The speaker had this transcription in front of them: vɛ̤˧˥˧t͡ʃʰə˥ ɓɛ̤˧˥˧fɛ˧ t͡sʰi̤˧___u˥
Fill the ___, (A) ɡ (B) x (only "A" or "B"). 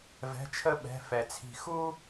B